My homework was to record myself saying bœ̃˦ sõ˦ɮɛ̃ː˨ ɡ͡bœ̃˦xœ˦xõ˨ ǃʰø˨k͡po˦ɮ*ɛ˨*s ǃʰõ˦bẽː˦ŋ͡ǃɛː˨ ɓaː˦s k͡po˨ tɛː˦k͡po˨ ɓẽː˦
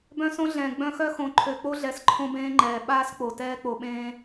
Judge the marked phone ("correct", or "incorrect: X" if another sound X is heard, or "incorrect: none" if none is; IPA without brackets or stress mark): correct